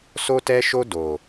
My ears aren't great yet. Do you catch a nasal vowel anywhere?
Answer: no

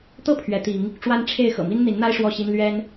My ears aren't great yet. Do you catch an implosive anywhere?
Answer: no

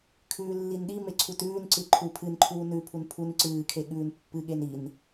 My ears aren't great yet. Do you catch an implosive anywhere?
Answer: yes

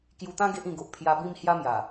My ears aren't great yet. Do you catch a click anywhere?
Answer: no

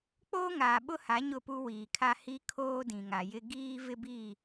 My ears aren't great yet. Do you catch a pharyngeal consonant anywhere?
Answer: no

